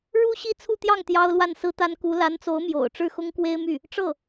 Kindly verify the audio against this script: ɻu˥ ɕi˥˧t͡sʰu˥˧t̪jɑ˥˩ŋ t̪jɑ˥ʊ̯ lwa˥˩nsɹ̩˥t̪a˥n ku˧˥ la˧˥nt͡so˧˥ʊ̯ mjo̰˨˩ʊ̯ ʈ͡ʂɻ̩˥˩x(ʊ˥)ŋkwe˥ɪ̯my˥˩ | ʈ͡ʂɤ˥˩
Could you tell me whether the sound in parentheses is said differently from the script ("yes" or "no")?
no